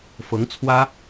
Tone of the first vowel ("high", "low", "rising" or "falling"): rising